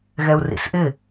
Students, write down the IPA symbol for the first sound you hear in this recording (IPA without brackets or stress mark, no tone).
ɣ